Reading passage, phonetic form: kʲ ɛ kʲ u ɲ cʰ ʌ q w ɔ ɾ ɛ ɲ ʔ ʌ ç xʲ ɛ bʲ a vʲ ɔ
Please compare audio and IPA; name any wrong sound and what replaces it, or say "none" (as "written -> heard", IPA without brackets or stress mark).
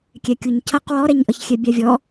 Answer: none